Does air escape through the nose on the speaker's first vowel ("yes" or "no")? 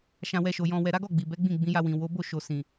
yes